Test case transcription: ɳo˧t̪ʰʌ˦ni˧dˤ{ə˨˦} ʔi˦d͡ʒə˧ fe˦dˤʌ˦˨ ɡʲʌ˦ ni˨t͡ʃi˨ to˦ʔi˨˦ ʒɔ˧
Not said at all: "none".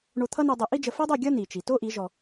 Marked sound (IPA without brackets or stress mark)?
ə˨˦